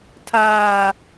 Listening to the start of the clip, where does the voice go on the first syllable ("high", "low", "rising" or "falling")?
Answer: low